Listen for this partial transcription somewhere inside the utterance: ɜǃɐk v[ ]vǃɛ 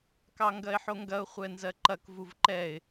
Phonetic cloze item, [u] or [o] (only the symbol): u